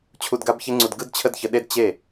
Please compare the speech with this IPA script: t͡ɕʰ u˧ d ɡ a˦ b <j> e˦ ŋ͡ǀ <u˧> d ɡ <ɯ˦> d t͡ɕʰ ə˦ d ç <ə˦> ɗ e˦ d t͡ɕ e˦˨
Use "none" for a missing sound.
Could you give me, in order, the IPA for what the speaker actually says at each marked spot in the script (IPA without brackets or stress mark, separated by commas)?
ç, u˧, ɯ˦, ə˧